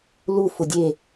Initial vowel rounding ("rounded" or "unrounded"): rounded